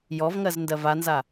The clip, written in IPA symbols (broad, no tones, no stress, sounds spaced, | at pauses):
j ɔ v ŋ ɜ z n d ɜ v a n z a